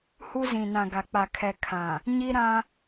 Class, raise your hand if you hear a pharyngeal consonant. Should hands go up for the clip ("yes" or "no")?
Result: no